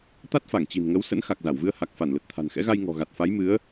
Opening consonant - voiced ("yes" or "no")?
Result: no